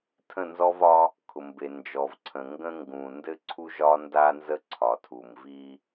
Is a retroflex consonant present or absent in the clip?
absent